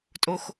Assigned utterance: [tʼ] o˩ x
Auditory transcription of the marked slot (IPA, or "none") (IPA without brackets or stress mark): tʼ